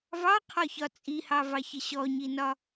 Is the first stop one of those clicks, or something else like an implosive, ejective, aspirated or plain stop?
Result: aspirated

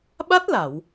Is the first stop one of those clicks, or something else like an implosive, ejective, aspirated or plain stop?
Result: implosive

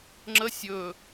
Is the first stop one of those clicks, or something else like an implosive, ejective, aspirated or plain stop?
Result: click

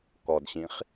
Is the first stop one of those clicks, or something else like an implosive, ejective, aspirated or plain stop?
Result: plain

